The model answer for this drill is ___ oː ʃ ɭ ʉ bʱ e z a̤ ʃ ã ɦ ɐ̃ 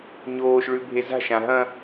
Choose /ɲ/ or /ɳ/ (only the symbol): ɲ